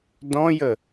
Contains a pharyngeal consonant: no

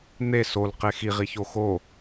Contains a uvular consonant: yes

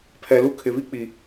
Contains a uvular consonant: no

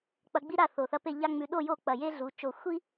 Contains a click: no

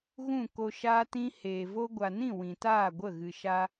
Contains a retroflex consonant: no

